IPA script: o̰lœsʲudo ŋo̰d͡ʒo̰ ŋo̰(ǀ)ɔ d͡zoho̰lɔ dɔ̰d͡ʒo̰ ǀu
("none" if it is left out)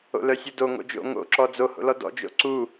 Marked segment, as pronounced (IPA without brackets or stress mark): ǁ